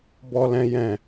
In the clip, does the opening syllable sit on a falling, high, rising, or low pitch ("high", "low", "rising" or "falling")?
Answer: high